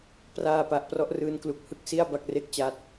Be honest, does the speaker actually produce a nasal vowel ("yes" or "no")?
no